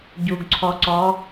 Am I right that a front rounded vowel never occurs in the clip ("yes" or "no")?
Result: yes